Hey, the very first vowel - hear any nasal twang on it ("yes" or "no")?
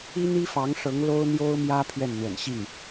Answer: no